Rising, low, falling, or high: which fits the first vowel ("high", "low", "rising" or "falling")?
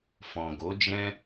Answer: low